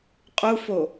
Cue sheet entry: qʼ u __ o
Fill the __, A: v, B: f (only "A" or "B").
B